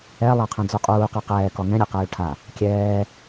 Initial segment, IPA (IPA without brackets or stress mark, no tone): ɛ